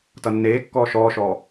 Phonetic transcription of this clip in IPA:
t ʌ nː eː kː ɔː ʃ ɔː ʃ ɔː

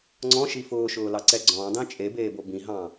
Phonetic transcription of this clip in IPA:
ŋ͡ǀ ɔ̃ ʃ i f ʊː ʃ ʊː l ɑ ǀ ɛ ɡ͡ǀ ɔ̃ dˤ ĩ t͡ʃʼ e b eː b o b ĩ ɦ ɑ̃

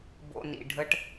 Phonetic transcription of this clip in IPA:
b o̰˧ n ḭ˨ ɖʱ ə˧ ʈ

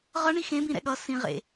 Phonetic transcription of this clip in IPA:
ʁ ʌ ɳ i x ẽ b ĩ ɾ ɛ̰ ɠ ʌ s ĩ ʁ ḛ

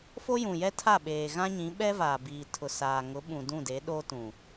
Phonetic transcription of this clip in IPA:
f o˦ j ũ˨ j ɛ˦ tʰ a˦˨ ɓ eː˨ ɣ ã˦ ɲ ĩ˨˦ ɓ ɛ˦ v aː˨ b iː˨ tʰ ʊ˨ s aː˨ ŋ ʊ˨˦ ɓ ũ˨ d ũ˦˨ d e˨˦ ɗ oː˦ t ũ˨

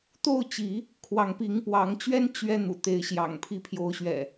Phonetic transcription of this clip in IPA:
t̪ o˥˨ ʊ̯ t͡ɕ i˨˦ | kʰ w ɑ˨˦ ŋ p i˨˦ ŋ p w ɑ˨˦ ŋ t͡ɕ ɥ ɛ˦ n t͡ɕ ɥ ɛ˦ n̪ ṵ˨˩ t̪ e˨˦ ɪ̯ ɕ j ɑ̰˨˩ ŋ pʰ i˦ pʰ j o˨˦ ʊ̯ ɕ ɥ ɛ̰˨˩

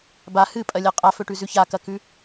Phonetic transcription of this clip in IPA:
b a h ɨ pʼ ɐ lʲ ɐ qʼ a f ɵ ʈ ʉ z ʉ ç a k ɐ k ʉ

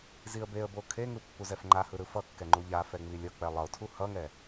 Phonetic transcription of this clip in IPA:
z i ə̯ b e ə̯ b o kʰ e ŋ ɯ pː u z ɛ f ŋ͡ǃ a h ɯ ɾ ɯ f ʌ kː ɛ ŋ͡ǃ u ʎ a f ɛ ŋ͡m i lʲ ʌ k͡p ɛ lˠ ʌ ʊ̯ tʰ u h ʌ ŋ ɛ

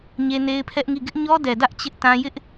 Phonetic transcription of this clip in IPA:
ɲ e˦ n e˦ ɪ̯ pʰ ɛ˦ ʔ ŋ i˦˨ ɡ ɪ˦ ʔ ɲ ɔ˦ d ɛ˨ d ä˦ ʔ t͡ɕ ɪ˦ ʔ t ã˦ j ɪ˦ ʔ

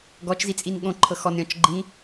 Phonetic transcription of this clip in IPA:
ɡ ɔ t͡ʃ z i t͡sʼ i n ɠ õ ǃʰ ɤ x ɔ n ɾʲ ɔ̃ t͡ʃ ɡ͡ǃ ĩ

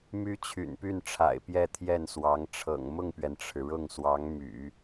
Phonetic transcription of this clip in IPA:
m y˥ t͡ɕʰ y̰˨˩ n p y˥˩ n ʈ͡ʂʰ a̰˨˩ ɪ̯ p j ɛ˥˧ t̪ʰ j ɛ˥˩ n s w ɑ˧˥ ŋ ʈ͡ʂʰ ɤ̰˨˩ ŋ m ʊ˥˩ ŋ p ɥ ɛ˩ n ʈ͡ʂʰ ɻ̩˩ ɻ ʊ˥˩ ŋ s w ɑ˧˥ ŋ m y̰˨˩˦

